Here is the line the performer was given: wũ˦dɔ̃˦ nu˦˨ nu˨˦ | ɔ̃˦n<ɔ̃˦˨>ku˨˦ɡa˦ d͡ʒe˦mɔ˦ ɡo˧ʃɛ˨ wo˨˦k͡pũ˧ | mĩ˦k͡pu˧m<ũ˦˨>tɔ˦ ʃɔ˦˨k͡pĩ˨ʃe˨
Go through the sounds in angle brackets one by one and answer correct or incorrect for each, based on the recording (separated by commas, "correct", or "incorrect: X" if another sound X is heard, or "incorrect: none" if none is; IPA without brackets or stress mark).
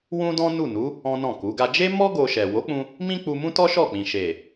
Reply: correct, incorrect: ũ˦